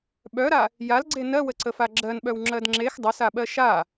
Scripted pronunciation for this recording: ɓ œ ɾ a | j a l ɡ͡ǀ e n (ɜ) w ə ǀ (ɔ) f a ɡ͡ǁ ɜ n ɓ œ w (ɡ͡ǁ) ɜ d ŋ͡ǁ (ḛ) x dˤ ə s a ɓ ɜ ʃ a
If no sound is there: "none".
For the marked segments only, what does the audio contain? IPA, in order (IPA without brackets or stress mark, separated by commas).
ɜ, ə, ŋ͡ǁ, e